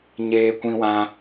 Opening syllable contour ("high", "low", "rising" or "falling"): high